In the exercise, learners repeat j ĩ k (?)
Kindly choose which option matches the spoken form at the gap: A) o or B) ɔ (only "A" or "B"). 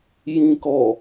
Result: B